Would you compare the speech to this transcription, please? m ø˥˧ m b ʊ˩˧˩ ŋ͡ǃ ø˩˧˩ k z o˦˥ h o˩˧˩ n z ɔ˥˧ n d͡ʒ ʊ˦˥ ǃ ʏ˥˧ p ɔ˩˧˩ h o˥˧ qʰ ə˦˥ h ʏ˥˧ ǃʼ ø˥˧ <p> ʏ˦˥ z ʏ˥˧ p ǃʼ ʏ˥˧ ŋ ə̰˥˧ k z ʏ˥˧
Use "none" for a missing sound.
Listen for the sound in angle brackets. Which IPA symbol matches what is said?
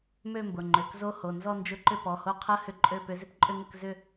p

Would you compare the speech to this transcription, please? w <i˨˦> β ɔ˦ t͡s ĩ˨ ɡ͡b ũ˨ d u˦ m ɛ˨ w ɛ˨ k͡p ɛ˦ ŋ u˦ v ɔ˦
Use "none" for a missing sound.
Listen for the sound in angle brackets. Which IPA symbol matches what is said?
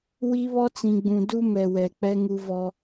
i˦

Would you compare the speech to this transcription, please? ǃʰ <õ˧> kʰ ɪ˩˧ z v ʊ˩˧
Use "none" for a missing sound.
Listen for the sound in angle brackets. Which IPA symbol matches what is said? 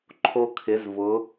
o˧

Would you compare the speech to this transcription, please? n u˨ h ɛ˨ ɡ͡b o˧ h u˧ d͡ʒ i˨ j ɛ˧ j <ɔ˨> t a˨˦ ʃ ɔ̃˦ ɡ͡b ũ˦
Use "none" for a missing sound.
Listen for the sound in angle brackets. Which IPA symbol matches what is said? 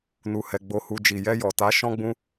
ɔ˨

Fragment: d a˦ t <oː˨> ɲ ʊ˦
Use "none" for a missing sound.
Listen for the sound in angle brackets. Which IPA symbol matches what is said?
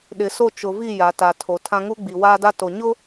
o˨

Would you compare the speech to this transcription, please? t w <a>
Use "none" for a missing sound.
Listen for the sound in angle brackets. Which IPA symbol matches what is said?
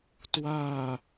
a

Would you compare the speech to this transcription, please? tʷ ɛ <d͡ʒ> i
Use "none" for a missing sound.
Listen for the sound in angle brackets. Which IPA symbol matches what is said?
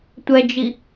d͡ʒ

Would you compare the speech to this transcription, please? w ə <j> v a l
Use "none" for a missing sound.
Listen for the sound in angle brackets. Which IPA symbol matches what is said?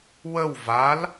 w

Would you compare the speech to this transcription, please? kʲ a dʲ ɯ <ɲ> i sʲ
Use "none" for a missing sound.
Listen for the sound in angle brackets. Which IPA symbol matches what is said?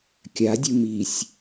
m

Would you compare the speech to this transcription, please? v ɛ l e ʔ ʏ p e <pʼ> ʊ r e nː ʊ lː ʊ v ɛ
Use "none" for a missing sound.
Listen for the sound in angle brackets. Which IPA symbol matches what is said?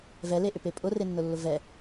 pʼ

